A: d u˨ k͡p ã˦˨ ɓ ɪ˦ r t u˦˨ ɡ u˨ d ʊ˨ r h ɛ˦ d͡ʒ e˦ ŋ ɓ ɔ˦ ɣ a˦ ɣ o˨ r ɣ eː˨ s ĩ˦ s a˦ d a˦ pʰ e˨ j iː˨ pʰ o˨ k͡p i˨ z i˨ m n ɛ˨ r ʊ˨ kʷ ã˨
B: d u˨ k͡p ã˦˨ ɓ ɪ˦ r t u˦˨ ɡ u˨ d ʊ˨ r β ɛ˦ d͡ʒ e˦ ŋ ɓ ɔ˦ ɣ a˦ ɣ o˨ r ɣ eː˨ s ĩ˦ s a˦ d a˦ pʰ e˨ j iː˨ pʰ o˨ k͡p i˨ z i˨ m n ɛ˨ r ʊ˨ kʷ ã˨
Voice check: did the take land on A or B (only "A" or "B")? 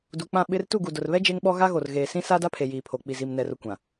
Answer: B